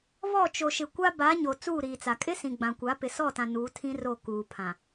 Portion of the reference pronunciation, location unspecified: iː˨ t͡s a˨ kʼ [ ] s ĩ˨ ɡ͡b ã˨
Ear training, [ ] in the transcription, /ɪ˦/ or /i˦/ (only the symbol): ɪ˦